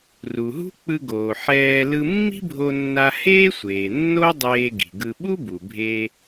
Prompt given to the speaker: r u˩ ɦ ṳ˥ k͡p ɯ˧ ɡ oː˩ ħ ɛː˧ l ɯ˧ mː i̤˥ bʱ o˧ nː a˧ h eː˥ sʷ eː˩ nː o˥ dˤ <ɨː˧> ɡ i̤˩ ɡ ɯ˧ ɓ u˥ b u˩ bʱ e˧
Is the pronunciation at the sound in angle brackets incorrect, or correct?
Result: incorrect